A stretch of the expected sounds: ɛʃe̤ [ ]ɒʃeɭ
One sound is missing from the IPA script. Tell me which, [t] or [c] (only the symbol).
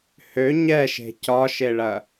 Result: c